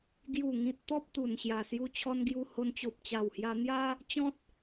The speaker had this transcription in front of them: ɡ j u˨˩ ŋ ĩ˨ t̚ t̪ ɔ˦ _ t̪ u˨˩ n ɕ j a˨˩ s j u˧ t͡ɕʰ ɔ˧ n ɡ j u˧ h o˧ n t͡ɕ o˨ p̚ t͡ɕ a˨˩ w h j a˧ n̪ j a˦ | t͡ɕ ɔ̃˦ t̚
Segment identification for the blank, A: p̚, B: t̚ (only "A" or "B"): A